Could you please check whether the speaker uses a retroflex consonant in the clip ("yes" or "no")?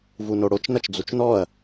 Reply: yes